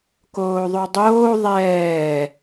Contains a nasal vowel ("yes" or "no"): no